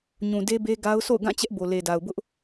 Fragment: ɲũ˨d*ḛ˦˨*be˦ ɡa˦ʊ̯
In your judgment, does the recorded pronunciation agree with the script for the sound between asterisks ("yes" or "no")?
no